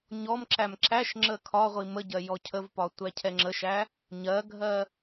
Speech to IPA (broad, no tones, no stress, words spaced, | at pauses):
ɲɔmǁæm ǁæʃ ŋ͡ǁəkʰɒʁʷi məɟɜ jɔcʰəvpɒ tʷæcʰɛŋ͡ǁəʃæ | ɲɜɡʱɜ